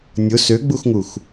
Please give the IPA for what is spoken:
nʲ ʊ s ø ɡ͡b u x ŋ u x

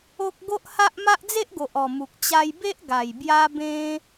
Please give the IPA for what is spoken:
o˦ k̚ ɡ o˦ ʔ h a˦ ʔ m a˦ ʔ d͡z e˦ ʔ ɡ o˨ ʔ ɔ˨˩ m u˨ k̚ t͡ɕ a˧ j b e˦ ʔ ɡ a˨˩ j b j a˧ b ẽ˧

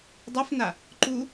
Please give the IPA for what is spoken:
dˤ ɛ f n a | ǃ u

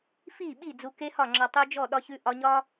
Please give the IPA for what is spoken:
f i˦˨ ɓ i˦˨ d͡z u˧ k e˦ h ɒ˦˨ ŋ͡ǁ ɒ˧ tˤ u˧ d͡ʒ ɔ˦˨ ɗ ɒ˧ ç ʉ˧ ʔ ɒ˧ ɲ ɒ˦

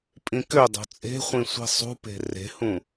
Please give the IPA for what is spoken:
pʼ ĩ k ø dˤ o̤ t͡sʼ e̤ χʷ ĩ sʷ i̤ sˤ ṳ p e̤ r e̤ h ũ

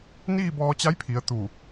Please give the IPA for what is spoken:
n iː˥˨ b ɔː˧ t͡ɕ a˧˥ j pʰ i˩˧ ə̯ t̪ u˧˩

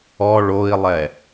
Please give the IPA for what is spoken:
ɔ ɭ o i̯ lˠ ɛ

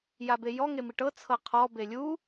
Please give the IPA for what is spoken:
j a b e j ɔ ŋ e m i ʈ ɤ t͡sʰ ɤ qʰ ɔ b e lʲ u

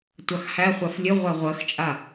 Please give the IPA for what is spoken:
tʷ ɑ x h æ χʷ ɑ f lʲ ɘ ʁʷ a ʁʷ ɜ x t͡ʃʼ a

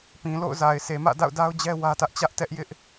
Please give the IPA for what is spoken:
p ĩ˨ l o̰˦˨ ʊ̯ z a˨ ɪ̯ s e˨ m ä̰˦˨ d a̰˦˨ ʊ̯ d a˦ ʊ̯ d͡ʑ ɛ˦ w ä˦ t ä˦ ʔ t͡ɕ ä˦ ʔ t ɛ˦ ʔ j ɪ˦ ʔ

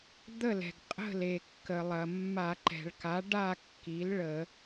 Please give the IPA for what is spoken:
d̪ ə˥˨ l ɛ̤˩ ɡ qʼ ə̤˥˨ l e˩ kː ə˩ lˠ ɐ˩ mː a˧˩˧ ǃ ɛ̤˩ ɭ k a˩˥ ɖ a˥˨ kː i˩˥ l ɭ ə˧˩˧

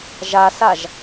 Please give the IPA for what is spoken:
ʒ a s a ʒ

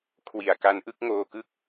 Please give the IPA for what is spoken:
kʰ w i˨˩ a̯ k a˧ n ʔ ɯ˥˩ k̚ ŋ oː˧ k ɯ˦˥ k̚

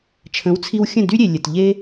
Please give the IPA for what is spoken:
t͡ʃʰ ə̃˩˥ w t͡sʰ i˧ w xʲ ə̃˥˩ d y˥ ɾʲ e˩ lʲ ə˩ t ʎ e˥

